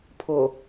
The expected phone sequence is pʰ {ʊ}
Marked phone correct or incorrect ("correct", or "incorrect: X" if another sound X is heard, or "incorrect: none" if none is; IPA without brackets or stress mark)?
correct